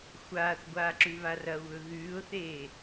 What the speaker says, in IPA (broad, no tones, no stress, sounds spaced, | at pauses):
xʷ aː θ ɡʷ aː ǁ ʉ β a r ɐ ʊ̯ β ɵ ɣ ʉː ʊ̯ θ eː